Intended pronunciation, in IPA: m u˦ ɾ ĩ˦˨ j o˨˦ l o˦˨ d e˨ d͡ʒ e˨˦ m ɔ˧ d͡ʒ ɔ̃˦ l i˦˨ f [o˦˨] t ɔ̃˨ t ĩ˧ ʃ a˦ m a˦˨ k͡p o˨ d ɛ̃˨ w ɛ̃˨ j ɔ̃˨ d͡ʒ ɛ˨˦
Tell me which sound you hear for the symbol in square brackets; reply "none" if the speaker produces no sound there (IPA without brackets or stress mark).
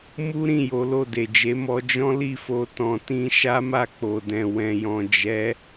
o˧